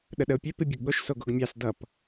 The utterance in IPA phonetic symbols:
ɗ ə ɗ ə o̯ pʲ ø p i bʲ ɯ ɡ ɠ o ʃ s o ɡ o ɡ mʲ ɑ s d ʌ p

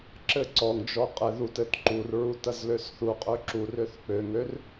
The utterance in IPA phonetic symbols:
ǁ ɘ ǀ ɔ ŋ d͡ʒ ɔ qʼ ɘ ð u t ɘ t ǃ u r ɹ u t ɐ z l ø s θ u qʼ ø ǁ u r ø θ k͡p ø ŋ ø r

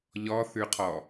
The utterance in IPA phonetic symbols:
ʎ ɔ θ ʉ qʰ ɔ

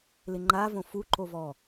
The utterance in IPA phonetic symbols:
l ɪ ŋ͡ǃ a v õ f u ǃ o v ɔ

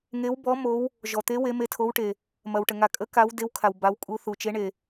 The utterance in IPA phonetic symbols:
ŋ e˧˥ w b ɔ˧˥ m o˧˥ w | ʒ ɔ˨ t̪ e˧˥ w e˧˥ m e˧˥ tʰ o˧˥ w ʈ e˨ | m ɐ˨ w ʈ ə˨ ŋ a˨ kʼ ə˧˥ k a˧˥ w d e˧˥ w kʰ a˨ w b a˧˥ w kʼ u˧˥ θ u˨ t͡ʃ e˧˥ ɳ e˨

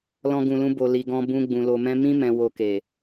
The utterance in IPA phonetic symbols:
l ɔ̃˧ ɡ ũ˨ l ũ˧ b o˨ l i˨ ɡ ɔ̃˧ b ũ˧ ɡ͡b ũ˨ l o˨ m ɛ̃˧ m ĩ˦ m ɛ̃˧ w o˧ k e˨

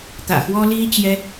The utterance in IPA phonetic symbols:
t̪ ä̰˨˩ x w ɔ˦ l i˦ t͡ɕ j ɛ˦

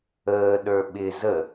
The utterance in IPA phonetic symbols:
əː ɗ ə˞ ɓ ɪ z ə

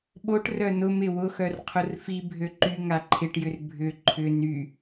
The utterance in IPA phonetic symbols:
ɓ o ʈ r œ n ʊ m ɪ w ʊ x œ r qʰ ʊ r f i bʱ ø ǃ y ŋ a ǃʰ ɪ ʈ j ʏ r bʱ ʏ ǃʰ ʏ n y

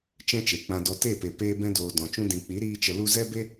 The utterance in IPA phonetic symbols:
t͡ʃ ɛ̃˦ t͡ʃ e˨ k͡p ã˧ d ɔ˧ t e˦˨ p e˨ p eː˧ b ɛ̃˧ d oː˨ d ɔ̃˨ t͡ʃ ũ˧ d ĩ˨ k͡p i˨˦ ɾ iː˧ t͡ʃ ə˧ l u˦ z ɛ˦ b e˦

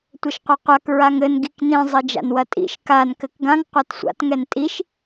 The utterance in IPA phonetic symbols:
tʷ ɘ ʃ qʷ ɐ qʷ a k ɹ a ŋ ɘ n ɡ i k n ĩ zˤ ɘ d͡ʒ a̰ n w ɐ tʼ ḭ ʃ k a n k ɘ k ɡ ã ŋ qʷ a t sʷ a̰ t ŋ ɛ n tʼ i ʃ

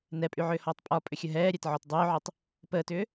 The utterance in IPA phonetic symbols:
n ɛ pʼ y ʕ ʏː h ɔː tˤ pʼ ɒ pʼ ʏ xʲ ə ɦ ɛː ɾʲ ɛ t ʕ ɔ t dˤ ʏː ʕ y tˤ | p əː t ʏː

